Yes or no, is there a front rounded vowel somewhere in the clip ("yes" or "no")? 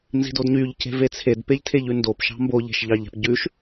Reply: yes